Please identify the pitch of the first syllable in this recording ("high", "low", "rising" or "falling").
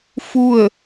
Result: falling